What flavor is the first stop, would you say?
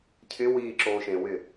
aspirated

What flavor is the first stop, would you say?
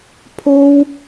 aspirated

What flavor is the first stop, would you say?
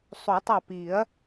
plain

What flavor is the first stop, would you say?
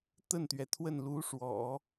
plain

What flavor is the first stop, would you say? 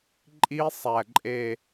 click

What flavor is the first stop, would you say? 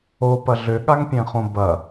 plain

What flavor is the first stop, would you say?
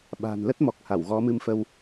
implosive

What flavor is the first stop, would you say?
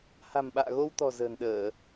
implosive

